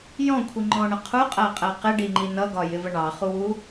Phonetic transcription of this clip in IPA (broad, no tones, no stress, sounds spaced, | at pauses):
j ɔ̃ kʷʰ i ŋ͡ǃ ɔ̃ ɳ ə qʰ u qʼ æ qʼ æ q ɪ ɖ i ŋ͡ǃ i n ʌ ɡ ɒ j ɪ v ə ɳ ɑ χ u w u